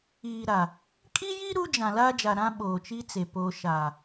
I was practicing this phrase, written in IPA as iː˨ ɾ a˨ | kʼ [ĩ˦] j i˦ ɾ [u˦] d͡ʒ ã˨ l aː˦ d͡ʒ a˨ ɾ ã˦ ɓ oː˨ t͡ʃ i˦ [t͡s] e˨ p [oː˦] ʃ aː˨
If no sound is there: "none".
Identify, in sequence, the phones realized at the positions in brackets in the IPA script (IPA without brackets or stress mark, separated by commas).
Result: i˦, u˦, t͡s, oː˨